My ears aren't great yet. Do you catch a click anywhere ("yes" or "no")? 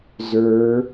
no